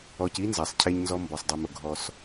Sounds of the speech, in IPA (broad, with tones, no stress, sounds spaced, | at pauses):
ɔ˨ c i˦ n z a˨ sˤ cʰ e˦ ɲ n z ɔ˦ m b ɔ˨ sˤ dˤ i˨ m ʊ˨ ɡʱ ɔ˦ s